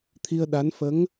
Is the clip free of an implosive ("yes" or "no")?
no